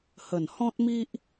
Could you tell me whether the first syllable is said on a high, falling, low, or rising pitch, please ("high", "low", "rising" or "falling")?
low